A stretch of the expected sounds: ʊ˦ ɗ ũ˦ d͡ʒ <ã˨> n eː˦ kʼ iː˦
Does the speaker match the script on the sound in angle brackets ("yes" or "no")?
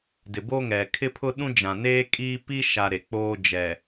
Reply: yes